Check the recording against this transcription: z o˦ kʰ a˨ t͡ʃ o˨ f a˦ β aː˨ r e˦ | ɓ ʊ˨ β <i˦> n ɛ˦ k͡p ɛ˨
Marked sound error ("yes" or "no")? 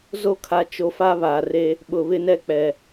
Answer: yes